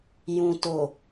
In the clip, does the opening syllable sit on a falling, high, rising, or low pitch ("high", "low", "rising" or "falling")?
low